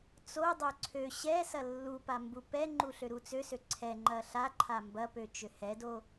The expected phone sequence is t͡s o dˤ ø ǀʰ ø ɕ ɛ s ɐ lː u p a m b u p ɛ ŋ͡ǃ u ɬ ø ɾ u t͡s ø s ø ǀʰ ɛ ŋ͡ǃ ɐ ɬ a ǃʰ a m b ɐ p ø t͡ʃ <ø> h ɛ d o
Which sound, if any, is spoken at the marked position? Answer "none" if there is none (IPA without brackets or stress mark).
ø